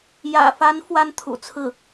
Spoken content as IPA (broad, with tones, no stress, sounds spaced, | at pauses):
j ä̰˨˩ f a˧˥ n f w a˥ n t̪ʰ ṵ˨˩ t͡sʰ ɹ̩˥˩